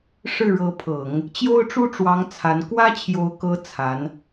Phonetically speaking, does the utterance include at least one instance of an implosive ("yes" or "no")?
no